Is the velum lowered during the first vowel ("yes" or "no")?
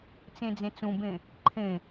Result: yes